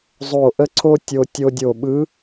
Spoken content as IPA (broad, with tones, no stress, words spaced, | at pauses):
zˤo˧˩ ʔə˥ǀʰo˥tʲo˧ tʲo˧dʲo˧˩ɓɯ˧˥